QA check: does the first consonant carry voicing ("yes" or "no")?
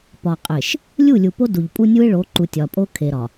no